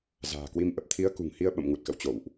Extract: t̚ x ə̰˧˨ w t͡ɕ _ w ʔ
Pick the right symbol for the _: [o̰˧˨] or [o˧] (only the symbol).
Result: o̰˧˨